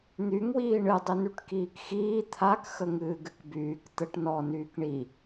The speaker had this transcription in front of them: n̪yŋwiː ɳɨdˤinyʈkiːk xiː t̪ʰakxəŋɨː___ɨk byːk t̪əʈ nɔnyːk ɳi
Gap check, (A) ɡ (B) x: A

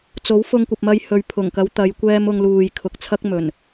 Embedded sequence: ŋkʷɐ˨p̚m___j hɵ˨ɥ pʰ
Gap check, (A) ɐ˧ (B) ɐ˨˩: A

